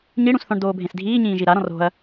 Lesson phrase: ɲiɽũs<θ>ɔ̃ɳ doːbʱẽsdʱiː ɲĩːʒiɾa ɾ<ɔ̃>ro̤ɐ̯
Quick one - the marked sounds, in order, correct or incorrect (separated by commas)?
correct, correct